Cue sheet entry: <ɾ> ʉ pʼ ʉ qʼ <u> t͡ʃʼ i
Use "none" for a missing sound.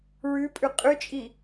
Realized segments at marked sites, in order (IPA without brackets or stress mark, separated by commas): ɹ, ʉ